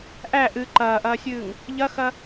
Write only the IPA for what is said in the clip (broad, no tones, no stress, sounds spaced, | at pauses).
ʔ æ ʔ ɨ ǃ ɐː ʔ ɐː sʲ ɨː ŋ | ʎ ɐ x ɐ